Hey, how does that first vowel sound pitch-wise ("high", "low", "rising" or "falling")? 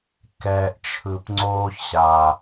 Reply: low